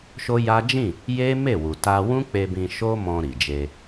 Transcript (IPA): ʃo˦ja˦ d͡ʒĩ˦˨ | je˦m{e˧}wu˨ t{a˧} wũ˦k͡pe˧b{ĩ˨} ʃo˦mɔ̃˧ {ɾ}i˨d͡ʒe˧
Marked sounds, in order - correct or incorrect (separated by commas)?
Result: incorrect, correct, incorrect, correct